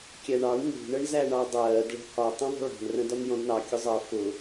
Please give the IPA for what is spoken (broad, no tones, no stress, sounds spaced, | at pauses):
kʲ æ ɳ ɑ ɳ n ṳ ɳ ə ɳ z æ ɳ ɑ dˤ ɜː d ɭ ə̤ h ɒ tˤ ə̃ ðˤ ə̤ ɭ ɑ̤ n r ə̃ d ɒ n j ɔ̃ d n ɑ kʲ ʊ zˤ ʌ f ʊ